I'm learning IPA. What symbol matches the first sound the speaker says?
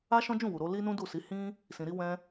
a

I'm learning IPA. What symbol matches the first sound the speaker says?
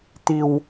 t̪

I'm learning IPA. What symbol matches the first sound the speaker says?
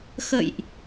x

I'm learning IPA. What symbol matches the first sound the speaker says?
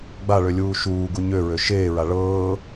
ɡ͡b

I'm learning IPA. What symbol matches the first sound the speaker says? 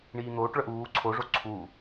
ɳ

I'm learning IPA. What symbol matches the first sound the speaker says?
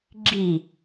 ɡ͡ǁ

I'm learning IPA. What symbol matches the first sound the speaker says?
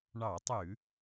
ɳ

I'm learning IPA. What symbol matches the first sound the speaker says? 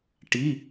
ʈ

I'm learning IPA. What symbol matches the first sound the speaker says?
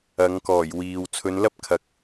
ɐ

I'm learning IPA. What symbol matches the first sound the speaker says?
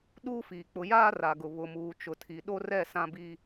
ɗ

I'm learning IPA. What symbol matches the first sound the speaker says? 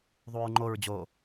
ðˤ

